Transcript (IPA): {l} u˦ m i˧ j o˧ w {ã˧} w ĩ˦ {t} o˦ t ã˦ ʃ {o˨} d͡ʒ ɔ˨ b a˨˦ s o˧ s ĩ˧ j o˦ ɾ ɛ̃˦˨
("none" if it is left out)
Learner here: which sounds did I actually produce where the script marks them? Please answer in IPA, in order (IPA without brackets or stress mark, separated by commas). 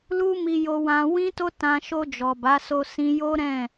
l, ã˧, t, o˧